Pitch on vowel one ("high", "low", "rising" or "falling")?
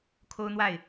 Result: high